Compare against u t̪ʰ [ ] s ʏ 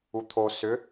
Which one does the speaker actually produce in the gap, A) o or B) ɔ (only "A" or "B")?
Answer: A